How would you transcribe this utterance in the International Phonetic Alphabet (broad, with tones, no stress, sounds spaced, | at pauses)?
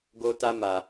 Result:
ɡ o˦ t a˦ m a˧